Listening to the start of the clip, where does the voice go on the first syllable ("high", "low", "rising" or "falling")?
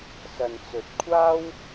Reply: low